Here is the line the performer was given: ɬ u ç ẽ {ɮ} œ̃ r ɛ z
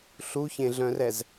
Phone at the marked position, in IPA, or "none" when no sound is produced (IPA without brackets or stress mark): ɮ